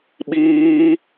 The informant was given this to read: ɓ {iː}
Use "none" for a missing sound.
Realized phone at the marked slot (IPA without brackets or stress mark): iː